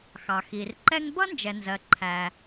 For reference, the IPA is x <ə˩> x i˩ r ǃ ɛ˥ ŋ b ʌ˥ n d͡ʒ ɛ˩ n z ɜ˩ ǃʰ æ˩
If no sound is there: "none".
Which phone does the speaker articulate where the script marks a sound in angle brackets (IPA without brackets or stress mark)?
ɑ˩